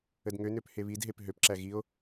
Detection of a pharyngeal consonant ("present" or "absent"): absent